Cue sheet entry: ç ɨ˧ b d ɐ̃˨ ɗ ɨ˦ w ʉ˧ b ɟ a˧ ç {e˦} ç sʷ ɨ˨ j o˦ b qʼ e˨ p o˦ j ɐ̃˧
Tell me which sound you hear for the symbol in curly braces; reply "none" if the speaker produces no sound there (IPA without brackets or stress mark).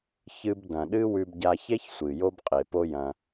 e˦